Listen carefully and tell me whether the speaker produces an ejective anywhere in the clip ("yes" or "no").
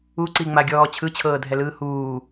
no